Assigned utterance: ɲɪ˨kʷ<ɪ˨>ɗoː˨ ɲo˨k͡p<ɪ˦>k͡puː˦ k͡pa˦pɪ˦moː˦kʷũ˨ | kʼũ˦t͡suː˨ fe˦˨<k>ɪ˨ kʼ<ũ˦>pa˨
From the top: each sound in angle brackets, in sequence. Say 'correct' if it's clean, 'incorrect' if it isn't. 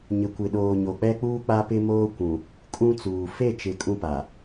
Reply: correct, incorrect: ɛ˦, incorrect: t͡ʃ, correct

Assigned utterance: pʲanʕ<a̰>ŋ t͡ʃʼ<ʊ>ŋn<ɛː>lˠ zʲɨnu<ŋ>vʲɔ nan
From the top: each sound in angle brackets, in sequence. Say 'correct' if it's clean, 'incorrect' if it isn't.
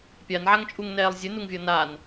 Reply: incorrect: a, incorrect: u, correct, correct

